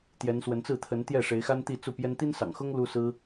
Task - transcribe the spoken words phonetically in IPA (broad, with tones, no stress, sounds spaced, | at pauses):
t̪ j ɛ˧˥ n s w ə˧˥ n t͡s ɹ̩˥˩ t̪ʰ ə˧˥ n t̪ j ɛ˥˩ ʂ e˧˥ ɪ̯ x a˥ n t̪ i˥˧ t͡s u˥˩ p j ɛ˥ n t̪ i˥ n s ɑ̰˨˩ ŋ x ʊ˥ ŋ l u˥ s ɹ̩˥